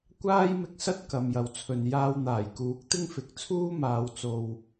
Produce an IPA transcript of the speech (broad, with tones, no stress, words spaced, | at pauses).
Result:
kʷaː˥jmɪ˧k̚sɐ˥t̚ kɐ˨mjɐ˨wt͡sʰɵ˨n jaː˧wn̪aː˨˩j kuː˨˥k̚t̪ɪ˥ŋfɪ˨˥k̚ t͡sʰuː˥maː˨˧w t͡so˨w